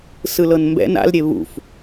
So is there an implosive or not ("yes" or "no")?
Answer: no